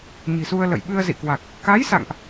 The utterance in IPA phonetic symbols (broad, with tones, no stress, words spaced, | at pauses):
ɲi̤˨˩su˧ə̯ lə̰˧˨j ɓɨ˧ə̯zḭ˧˨kwa˨˩k̚ | ka˨˦jsa̰˧˨ŋʔ